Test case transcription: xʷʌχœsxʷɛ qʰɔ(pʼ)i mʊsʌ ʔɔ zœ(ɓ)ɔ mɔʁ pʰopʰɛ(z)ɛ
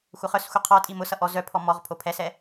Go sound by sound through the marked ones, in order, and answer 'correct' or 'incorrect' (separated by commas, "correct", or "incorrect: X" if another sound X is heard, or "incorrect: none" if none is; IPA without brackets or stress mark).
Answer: incorrect: tʼ, incorrect: pʰ, incorrect: s